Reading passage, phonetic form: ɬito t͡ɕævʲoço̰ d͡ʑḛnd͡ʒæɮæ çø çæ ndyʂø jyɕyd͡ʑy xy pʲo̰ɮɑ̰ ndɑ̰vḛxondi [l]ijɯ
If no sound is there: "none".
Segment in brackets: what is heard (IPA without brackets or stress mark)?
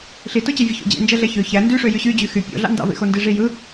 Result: ʐ